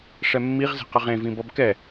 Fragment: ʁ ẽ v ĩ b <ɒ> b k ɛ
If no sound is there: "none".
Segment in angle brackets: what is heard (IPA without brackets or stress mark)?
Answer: ʌ